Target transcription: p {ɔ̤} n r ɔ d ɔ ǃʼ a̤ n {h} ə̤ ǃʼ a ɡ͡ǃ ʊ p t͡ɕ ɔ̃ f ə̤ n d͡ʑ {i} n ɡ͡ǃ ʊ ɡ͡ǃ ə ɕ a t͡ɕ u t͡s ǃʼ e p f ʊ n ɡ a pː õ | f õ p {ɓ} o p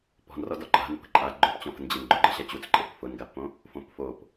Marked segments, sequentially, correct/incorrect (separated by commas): correct, incorrect, incorrect, incorrect